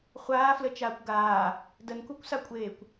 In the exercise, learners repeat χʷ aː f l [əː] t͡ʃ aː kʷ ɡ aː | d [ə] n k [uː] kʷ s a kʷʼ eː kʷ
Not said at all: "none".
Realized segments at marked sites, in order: ə, ə, u

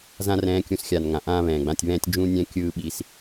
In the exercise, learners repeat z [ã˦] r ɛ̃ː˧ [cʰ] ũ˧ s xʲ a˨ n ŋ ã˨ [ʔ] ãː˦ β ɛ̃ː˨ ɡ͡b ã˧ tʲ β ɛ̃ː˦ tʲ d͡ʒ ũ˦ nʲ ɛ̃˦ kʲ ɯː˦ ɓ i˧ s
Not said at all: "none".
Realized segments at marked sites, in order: ã˦, kʲ, ʔ

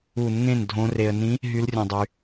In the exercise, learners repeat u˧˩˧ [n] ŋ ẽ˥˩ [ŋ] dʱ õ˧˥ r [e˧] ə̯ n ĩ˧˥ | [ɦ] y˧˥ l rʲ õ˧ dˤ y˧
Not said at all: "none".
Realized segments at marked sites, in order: n, n, e˧, ɦ

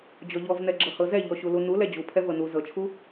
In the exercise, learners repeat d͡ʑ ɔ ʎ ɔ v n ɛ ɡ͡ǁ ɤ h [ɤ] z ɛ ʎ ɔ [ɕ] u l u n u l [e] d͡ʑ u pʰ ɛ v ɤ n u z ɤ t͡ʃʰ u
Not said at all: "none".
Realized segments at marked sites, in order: ɤ, ɕ, ɛ

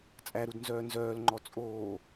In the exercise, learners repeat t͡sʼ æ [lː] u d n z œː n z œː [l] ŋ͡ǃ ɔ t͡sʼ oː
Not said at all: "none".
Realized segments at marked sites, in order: ɾ, l

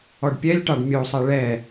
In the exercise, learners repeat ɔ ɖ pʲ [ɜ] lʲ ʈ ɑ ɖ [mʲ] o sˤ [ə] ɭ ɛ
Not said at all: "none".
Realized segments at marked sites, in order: ɛ, mʲ, ɛ

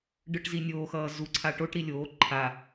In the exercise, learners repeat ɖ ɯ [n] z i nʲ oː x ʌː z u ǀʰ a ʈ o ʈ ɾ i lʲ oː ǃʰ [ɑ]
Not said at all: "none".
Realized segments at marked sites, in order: ʈ, a

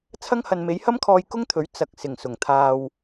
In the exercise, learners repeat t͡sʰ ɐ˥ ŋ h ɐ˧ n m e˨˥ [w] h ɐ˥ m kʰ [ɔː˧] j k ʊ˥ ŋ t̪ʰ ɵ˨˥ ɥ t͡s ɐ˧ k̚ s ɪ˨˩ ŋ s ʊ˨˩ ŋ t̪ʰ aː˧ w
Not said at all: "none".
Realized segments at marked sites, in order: j, ɔː˧

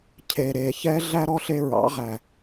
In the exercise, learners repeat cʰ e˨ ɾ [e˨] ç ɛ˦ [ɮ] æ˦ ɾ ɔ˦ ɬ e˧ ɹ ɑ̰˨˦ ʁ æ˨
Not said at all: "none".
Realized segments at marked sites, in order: e˨, ɮ

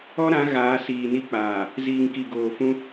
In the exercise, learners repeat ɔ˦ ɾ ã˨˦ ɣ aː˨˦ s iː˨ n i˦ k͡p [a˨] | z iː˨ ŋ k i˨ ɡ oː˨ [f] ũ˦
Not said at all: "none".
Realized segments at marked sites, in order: aː˨, f

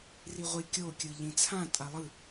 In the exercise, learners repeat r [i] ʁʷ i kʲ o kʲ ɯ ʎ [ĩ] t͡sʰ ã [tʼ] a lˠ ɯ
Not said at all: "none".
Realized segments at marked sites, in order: i, ĩ, tʼ

